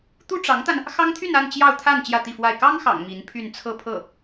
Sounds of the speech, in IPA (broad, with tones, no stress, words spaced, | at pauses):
t̪u˥ʈ͡ʂɑ˧˥ŋt̪a˧n | xɑ˥ŋt̪ʰy˥˧na˥˧n t͡ɕjɑ˥˧ʊ̯t̪ʰa˥˧n t͡ɕjä˥˧t̪i˥˧fwa˥˩ɪ̯ kɑ˥ŋxɑ̰˨˩ŋ mi˧˥npʰy˥˧n t͡sʰɤ˥˧pʰɤ˥˩